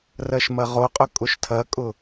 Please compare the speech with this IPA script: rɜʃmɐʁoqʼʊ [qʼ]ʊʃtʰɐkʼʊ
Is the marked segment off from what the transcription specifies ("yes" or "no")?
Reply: yes